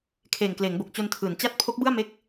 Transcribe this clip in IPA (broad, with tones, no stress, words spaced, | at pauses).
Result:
kʰeː˨˩ŋkleː˩˦ŋbo˨˩k̚ t͡ɕo˧ntʰɯː˩˦n t͡ɕa˦˥t̚ pʰo˦˥k̚bɯ˥˩a̯ me˥˩k̚